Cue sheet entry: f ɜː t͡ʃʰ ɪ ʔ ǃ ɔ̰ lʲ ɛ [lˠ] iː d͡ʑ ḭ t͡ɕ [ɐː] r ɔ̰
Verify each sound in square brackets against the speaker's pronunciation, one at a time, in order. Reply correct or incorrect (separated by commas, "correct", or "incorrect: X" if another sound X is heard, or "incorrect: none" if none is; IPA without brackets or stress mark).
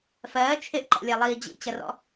correct, incorrect: ɐ